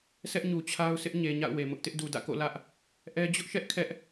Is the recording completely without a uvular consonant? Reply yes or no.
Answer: yes